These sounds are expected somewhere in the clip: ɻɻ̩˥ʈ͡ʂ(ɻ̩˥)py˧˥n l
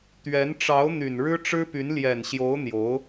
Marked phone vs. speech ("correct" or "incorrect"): correct